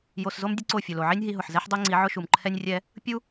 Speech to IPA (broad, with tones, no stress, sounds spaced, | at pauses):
j o˨ s z o˦ m dʲ ʊ˦ ǀ o˦˨ fʲ ʊ˨ l o˨ ʕ i˦ nʲ ɦ i˧ ɦ ʊ˨ ħ z ɛ˦ ħ dˤ o˦ ŋ͡ǀ i˨˦ ʕ ʊ˦ ʃ u˨ m ǃʰ ɛ˧ nʲ rʲ ɛ˧ | pʲ u˦